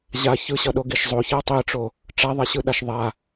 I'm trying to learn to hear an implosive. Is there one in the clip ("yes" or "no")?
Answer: yes